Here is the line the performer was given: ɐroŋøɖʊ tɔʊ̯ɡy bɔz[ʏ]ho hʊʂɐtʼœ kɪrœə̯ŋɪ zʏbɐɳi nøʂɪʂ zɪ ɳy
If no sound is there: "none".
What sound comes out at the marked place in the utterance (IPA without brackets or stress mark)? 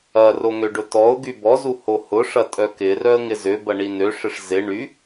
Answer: u